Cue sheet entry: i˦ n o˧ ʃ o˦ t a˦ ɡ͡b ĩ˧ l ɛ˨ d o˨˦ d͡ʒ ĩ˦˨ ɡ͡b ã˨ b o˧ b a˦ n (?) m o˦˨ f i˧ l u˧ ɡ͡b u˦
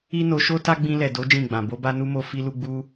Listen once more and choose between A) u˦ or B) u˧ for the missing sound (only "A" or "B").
A